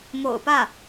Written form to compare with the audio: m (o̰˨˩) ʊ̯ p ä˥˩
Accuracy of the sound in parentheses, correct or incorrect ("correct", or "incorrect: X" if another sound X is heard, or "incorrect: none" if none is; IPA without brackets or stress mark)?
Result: correct